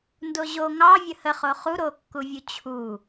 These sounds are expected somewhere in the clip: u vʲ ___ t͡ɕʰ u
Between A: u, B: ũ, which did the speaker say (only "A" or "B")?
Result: A